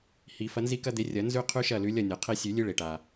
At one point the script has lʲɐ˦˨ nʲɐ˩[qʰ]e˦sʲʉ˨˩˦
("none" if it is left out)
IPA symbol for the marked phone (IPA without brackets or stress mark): qʰ